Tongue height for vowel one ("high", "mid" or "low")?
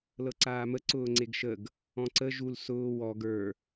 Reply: mid